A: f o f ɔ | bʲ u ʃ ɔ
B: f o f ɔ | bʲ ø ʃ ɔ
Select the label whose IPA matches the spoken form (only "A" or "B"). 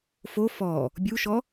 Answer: A